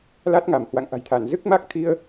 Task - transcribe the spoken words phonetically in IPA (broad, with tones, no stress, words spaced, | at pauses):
la˦˥t̚ŋa˧˩m hwa̰˧˨ŋʔa̤˨˩jt̪ʰa˧˩n zɨ˦˥k̚ma˦˥k̚t̪ʰi˧ə̯